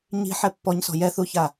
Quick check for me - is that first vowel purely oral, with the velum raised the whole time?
yes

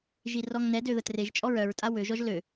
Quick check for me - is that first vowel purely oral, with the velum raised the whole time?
yes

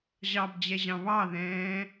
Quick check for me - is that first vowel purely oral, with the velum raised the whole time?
yes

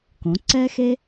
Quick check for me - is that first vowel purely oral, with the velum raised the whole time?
no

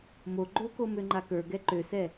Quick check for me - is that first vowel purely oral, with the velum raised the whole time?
yes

